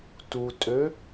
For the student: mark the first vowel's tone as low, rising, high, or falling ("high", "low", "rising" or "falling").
low